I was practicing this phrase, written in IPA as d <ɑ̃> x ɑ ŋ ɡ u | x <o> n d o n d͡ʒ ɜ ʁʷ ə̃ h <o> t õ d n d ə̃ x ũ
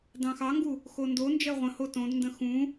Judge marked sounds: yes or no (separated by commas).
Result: yes, yes, yes